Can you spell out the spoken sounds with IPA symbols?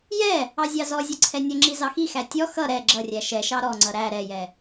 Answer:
j ɛ | ɑ zʲ ɑ z ɔ zʲ ʌ ǀʰ ɛ nʲ ʌ ŋ͡ǁ i z ɑ x i x æ tʲ ɔ x ʌ ɾ ɛ ɡ͡ǁ ʌ rʲ æ ʃ ɛ ʃ ɑ ɾ ɔ ŋ͡ǀ ʌ ɾ æ ɾ ɛ j ɛ

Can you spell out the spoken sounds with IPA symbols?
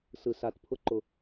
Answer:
s ɯ s a t pʰ ʊ ǃ ʊ

